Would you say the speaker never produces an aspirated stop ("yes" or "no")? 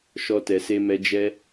yes